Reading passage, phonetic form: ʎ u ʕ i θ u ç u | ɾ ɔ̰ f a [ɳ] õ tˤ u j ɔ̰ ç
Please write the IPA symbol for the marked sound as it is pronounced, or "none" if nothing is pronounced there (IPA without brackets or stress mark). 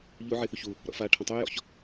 ʈʰ